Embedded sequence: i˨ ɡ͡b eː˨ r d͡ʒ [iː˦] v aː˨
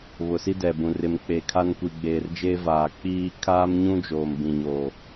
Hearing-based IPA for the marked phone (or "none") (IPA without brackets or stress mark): eː˦